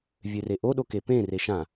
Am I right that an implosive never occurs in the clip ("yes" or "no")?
no